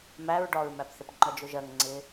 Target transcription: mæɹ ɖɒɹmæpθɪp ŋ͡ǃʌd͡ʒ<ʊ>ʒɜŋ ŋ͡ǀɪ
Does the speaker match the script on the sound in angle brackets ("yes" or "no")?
yes